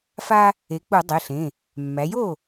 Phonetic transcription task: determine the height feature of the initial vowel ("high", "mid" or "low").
low